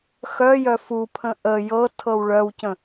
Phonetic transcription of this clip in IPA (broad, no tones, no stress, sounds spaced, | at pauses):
x œ j œ f u pʰ ə̃ ʔ ə j ɤ tʰ ɤ w ɭ œ w c ə̃